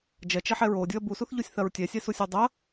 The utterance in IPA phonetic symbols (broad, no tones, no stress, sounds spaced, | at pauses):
d͡ʒ ɐ t͡ʃ ɛ ħ ɛ ɹ o dʲ u ɐ̯ b u s u θ ʎ u sʲ θ ɐ ɹ tʲ ɛ sʲ ɛ s u sʲ u dˤ ɐ